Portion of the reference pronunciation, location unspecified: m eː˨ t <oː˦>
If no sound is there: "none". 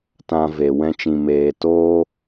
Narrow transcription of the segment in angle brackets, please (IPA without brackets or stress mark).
oː˦